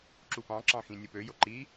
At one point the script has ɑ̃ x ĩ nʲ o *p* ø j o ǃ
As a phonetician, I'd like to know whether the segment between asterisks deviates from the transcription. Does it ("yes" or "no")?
no